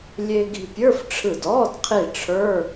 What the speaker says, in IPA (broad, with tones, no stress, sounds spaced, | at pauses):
lʲ e˧ ɡ i̤˧ pʲ ə˞˧˥˧ f ʈ͡ʂʰ ɯ˧˩ d ɔː˧˥˧ d qʰ i˧˩ ʈ͡ʂʰ ə˞˧˥˧